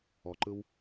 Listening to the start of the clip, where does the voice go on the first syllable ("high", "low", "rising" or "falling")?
low